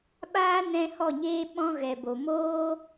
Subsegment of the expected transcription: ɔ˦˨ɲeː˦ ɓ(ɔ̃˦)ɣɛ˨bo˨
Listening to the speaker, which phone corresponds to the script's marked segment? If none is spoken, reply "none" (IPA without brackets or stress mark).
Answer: ɔ̃˦